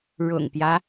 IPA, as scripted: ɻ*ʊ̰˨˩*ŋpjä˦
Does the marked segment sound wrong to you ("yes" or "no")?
no